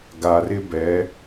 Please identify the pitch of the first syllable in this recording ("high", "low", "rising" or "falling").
low